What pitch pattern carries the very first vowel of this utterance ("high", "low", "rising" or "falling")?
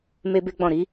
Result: high